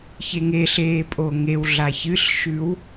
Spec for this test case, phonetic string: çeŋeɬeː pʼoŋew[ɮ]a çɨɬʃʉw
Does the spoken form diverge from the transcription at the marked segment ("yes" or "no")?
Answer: no